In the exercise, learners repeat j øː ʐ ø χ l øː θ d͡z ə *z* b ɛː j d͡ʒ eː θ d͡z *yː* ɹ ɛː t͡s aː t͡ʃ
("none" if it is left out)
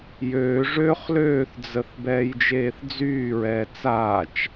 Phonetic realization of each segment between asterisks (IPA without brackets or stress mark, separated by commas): θ, yː